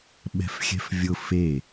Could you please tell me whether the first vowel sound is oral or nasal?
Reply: oral